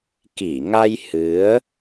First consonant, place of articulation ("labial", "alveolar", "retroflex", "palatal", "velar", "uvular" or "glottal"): velar